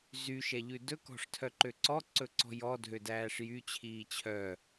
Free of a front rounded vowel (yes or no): no